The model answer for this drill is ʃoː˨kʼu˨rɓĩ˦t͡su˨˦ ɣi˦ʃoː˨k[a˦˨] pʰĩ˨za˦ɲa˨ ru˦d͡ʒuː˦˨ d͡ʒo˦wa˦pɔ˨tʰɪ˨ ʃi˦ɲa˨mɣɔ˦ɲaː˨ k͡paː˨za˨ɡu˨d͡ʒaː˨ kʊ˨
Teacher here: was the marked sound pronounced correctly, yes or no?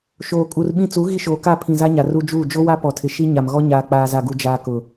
yes